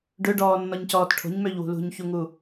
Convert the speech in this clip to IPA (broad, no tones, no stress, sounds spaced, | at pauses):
ɖ ø ɖ ɔː nː ɔ ɲ c ɔː t ʈʰ o̤ ɲ m ø ʎ w ṳ l ṳ ɲ ç u ŋ u